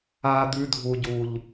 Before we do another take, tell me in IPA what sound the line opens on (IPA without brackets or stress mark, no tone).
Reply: a